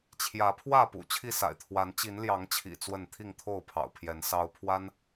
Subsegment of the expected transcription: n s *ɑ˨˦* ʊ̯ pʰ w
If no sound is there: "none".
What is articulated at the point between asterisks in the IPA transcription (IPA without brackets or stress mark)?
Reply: ɑ˦